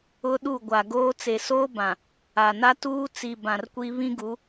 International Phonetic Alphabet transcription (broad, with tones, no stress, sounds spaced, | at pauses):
ʊ˦ ɗ u˦˨ ɡʷ a˨ ɡ oː˦ t͡s e˨ s oː˦ b ã˨ | a˨ n a˦ t uː˦ t͡s i˨ b ã˨ r kʷ i˦ β ĩ˦ ɡ u˨˦